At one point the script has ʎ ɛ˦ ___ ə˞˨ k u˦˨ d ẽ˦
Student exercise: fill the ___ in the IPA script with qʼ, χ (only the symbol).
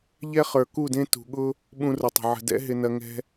χ